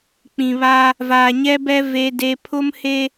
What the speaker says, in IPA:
k͡p ĩ˨ β a˦ | v aː˨ ɲ ɛ˦ b ɛ˦ v e˦ d e˦ pʰ ʊ˦ m h e˦

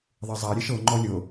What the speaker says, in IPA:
ðˤ e zˤ a ɾʲ e ʃ ɤ ŋ͡ǃ ɔ lʲ ɤ

